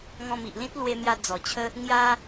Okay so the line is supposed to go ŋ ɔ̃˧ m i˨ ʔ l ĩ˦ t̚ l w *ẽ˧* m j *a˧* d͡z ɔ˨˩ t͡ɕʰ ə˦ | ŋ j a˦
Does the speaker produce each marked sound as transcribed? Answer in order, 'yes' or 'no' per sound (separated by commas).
no, yes